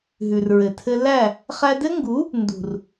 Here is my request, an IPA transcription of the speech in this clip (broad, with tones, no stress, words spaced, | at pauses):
ɦʉ˨rɹɘ˨tʰɘ˦ læ˦˨ | χæ˧dɘ˦ŋɡu˨˦ | ndṳ˨r